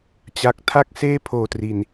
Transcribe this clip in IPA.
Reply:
t͡ɕ a˨˩ k̚ tʰ a˥˩ k̚ s eː˥˩ pʰ oː˨˩ t r i˨˩ n

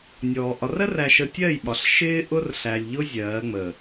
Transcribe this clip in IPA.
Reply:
nʲ ɔː˨ ʔ ɒ˨ r ɜ˦ r æ˨ ʃ ə˨ tʲ ɜ˦˨ j ɓ ɒ˨ ɬ ʃ ɪː˦ ʔ ʊ˦ r ɬ æ˨ lʲ ʎ ʊ˦ zʲ ɜː˨˦ ŋ͡m ə˨

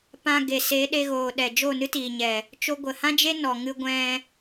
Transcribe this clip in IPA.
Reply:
p ã˧ ɡ e˨ s e˨˦ ɗ e˧ ɣ oː˨ ɗ ɛ˨ d͡ʒ o˦˨ n ɨ˦ t iː˨ ɲ ɛ˨ | t͡ʃ o˧ ɡʷ ə˨ h ã˦ d͡ʒ e˦ n ɔ˨ ŋ ɨ˧ ɡʷ ɛ̃˧

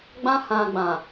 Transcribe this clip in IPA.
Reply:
ɡ͡b ã˧ h ã˨ ɡ͡b ã˨

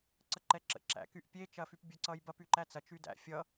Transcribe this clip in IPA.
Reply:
ǀ ə ǃ ɛ ǁ ə̰ ǁ æ̰ k y ʔ pʲ e t͡ʃ ɐ f y p bʲ ə ǀ ʌ j b ɐ p y ǃ æ t͡s ɐ t͡ʃ y d æ̰ fʲ ʌ

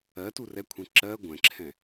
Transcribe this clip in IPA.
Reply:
ɜ t u r ɛ kʷʰ ẽ ǁ ɜ ɡʷ ɛ̃ ǁʰ ɛ̃

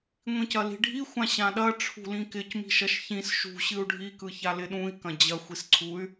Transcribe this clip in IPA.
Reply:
ŋʷ ĩ c ɐ l i̤ ɖʱ i xʷ ã ɕ ã ɗ ɐ ʈ͡ʂʰ ṳ l ĩ k ɪ c m i̤ ʃ ɐ ʃ ç ĩ s ʃ ṳ ɕ ɨ u̯ ɖʱ i k ɯ ç a l ɪ ɗ ũ i̯ k ɐ̃ d͡ʑ ɐ xʷ i s ǀʰ u y̯

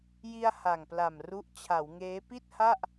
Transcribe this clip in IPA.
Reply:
j i˧ a̯ h a˨˩ ŋ p l a˨˩ m r u˦˥ ʔ t͡ɕʰ a˩˦ w ŋ eː˦˥ p i˥˩ t̚ h a˥˩ ʔ

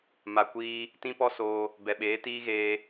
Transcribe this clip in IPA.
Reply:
m a˧ kʷ iː˦ | t ĩ˦ p ɔ˦ s oː˧ | b ɛ˨ ɓ eː˨˦ t iː˦ ɣ eː˧

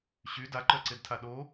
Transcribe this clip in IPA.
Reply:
ɕ y d a ǃ œ ǀ e d tʰ a ɗ o

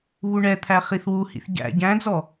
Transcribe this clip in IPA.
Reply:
β u ɳ ɛ t̪ʰ æ χ i θ w u h ḭ θ ɟ æ̰ ɟ æ̃ d͡z ɔ

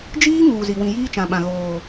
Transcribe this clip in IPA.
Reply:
d͡ʒ iː˦ ŋ uː˨ z i˨ w ĩ˨ j iː˦ t͡ʃ ã˨ ɓ ã˨ ɣ oː˨

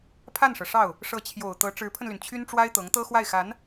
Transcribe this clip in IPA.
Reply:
pʰ a˥˩ n ʂ ɤ˩ ʂ ɑ˥˩ ʊ̯ | ʂ ɤ˧˥ t͡ɕʰ j o˨˩ ʊ̯ t̪ ɤ˧˥ ʈ͡ʂ ɻ̩˧˥ pʰ ə˧ n l y˩ n t͡ɕʰ y˥ n ʈ͡ʂ w a˥ ɪ̯ t̪ ɤ˧˥ ŋ t̪ ɤ˥ x w a˥˩ ɪ̯ x a˧˥ n

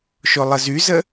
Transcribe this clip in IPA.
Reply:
ʃ o lˠ ə z y z ə

